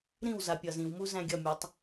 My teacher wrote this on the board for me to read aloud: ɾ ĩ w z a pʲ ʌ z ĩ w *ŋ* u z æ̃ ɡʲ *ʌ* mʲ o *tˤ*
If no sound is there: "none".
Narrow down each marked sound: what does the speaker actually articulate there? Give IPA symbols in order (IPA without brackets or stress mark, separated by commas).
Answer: m, ʌ, tˤ